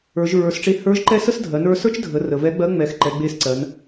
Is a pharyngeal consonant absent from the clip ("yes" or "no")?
yes